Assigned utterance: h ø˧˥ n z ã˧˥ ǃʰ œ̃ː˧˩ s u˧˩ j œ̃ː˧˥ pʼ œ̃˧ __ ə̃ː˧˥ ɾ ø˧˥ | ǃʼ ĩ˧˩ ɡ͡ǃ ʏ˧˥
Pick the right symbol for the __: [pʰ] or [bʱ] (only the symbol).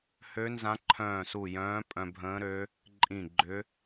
bʱ